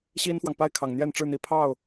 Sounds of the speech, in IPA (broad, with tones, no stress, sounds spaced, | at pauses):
ɕ i˥ n f w ɑ˨ ŋ p a˥˩ ɪ̯ kʰ ɑ˨˩ ŋ n̪ j ɛ˥˧ n ʈ͡ʂ ɻ̩˥˩ n̪ i˨˩ pʰ ɑ˥˩ ʊ̯